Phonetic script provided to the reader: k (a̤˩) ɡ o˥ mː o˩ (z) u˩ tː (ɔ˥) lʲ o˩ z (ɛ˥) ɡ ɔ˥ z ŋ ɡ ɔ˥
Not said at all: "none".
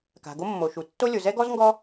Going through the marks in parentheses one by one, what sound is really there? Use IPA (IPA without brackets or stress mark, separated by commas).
a̤˩, ʃ, o˥, ɛ˥